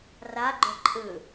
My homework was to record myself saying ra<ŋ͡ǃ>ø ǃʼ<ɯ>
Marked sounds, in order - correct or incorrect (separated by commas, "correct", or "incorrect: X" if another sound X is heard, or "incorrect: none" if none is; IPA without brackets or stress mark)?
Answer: incorrect: ɡ͡ǃ, correct